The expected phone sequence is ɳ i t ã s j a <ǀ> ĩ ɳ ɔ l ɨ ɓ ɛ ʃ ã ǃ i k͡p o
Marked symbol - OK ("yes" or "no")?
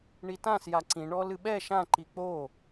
yes